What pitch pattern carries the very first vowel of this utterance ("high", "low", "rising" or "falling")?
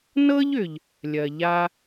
high